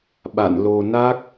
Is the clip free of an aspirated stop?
yes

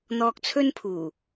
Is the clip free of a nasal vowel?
yes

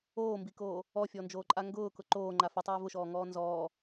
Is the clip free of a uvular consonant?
yes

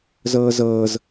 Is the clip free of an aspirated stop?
yes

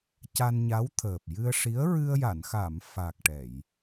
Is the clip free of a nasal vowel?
yes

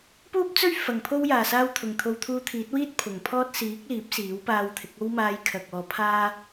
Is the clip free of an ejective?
yes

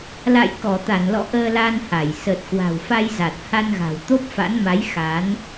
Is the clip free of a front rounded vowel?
yes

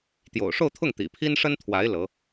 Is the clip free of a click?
yes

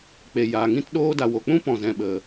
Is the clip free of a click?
yes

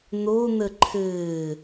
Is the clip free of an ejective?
yes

